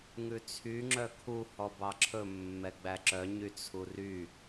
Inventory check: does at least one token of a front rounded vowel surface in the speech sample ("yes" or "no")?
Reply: yes